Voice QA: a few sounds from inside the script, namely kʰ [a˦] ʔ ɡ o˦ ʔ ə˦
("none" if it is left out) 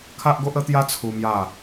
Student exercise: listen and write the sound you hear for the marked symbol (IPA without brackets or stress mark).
a˦